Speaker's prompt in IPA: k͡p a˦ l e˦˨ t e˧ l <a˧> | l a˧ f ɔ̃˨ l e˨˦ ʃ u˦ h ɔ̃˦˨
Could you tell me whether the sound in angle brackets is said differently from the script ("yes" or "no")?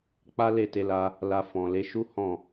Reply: no